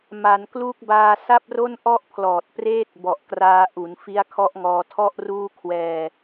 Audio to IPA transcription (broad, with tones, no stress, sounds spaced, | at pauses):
m a˩˦ n k l uː˦˥ k̚ b aː˧ s a˥˩ p̚ r o˥˩ n ʔ ɔ˥˩ ʔ pʰ l ɔː˨˩ t̚ p r eː˥˩ t̚ b ɔ˨˩ ʔ k r aː˧ ʔ u˩˦ n f i˦˥ a̯ kʰ ɔ˦˥ ʔ ŋ ɔː˧ tʰ ɔ˥˩ ʔ r uː˥˩ kʰ w ɛː˧